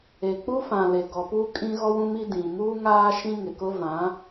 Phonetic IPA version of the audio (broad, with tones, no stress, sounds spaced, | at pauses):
e˨ k͡p u˦ f ã˨ l e˨ ɡ ɔ˨ p u˦ kʼ ĩ˦ ɣ ɔ˦ w ũ˦ m i˦ d ĩ˨ m uː˦ ŋ aː˦ ʃ ĩ˦ ŋ ɪ˨ k ʊ˦ v ã˨˦